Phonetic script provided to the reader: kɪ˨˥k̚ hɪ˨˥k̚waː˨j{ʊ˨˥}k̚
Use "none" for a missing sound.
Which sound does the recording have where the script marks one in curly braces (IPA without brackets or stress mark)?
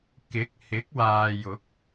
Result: ʊ˨˥